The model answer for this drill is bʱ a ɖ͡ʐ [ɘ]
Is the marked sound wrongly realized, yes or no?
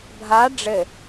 no